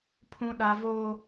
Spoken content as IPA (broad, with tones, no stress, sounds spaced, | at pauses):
pʰ ũ˦ ɗ a˦ v oː˦